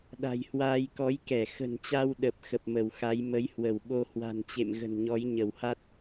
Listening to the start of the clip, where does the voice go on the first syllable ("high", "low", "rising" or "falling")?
low